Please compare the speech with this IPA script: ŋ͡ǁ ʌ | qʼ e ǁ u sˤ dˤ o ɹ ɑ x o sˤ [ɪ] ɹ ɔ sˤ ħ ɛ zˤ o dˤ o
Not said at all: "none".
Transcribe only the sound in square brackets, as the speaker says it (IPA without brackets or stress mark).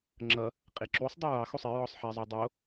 ɪ